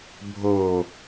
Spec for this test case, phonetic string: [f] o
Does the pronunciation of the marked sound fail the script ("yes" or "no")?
yes